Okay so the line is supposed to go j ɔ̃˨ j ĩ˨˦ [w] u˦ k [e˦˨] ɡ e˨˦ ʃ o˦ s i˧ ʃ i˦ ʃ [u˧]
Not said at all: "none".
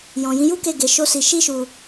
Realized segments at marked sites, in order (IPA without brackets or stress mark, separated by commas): j, e˦˨, u˧